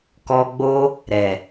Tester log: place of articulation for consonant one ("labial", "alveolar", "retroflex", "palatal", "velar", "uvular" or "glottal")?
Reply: velar